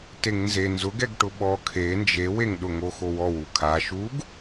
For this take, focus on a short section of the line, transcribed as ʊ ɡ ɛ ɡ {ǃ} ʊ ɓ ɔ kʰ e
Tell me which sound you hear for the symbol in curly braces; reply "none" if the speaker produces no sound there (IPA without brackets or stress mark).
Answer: ʈ